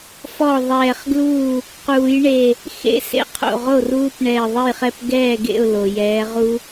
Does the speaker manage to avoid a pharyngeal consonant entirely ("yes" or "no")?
yes